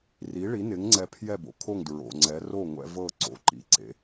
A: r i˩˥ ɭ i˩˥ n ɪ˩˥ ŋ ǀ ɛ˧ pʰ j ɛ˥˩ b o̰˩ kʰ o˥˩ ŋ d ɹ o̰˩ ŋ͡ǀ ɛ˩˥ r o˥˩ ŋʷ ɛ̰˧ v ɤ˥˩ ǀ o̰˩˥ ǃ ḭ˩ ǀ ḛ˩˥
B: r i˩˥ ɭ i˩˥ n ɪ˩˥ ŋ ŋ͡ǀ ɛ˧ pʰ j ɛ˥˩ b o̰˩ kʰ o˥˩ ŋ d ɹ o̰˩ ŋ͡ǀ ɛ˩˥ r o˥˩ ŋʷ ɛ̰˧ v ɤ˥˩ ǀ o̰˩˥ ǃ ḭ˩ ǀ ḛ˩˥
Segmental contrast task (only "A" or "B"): B